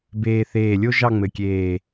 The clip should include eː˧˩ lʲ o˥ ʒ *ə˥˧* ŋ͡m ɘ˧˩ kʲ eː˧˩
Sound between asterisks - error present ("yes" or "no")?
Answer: yes